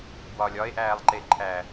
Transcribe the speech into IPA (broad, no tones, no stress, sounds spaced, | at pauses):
b w ɒ lʲ ɒ e̯ ʔ æː lˠ ǃ e ǃʰ æː